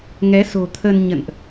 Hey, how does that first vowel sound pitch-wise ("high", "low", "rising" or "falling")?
rising